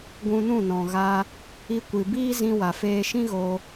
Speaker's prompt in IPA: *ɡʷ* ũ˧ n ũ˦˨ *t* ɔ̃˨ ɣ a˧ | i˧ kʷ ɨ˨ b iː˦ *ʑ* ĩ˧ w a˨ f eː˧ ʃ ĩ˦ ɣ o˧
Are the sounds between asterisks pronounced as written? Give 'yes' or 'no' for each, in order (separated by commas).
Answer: yes, no, no